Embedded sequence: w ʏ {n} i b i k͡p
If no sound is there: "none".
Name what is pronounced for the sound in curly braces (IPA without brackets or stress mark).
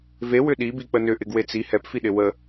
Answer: ɗ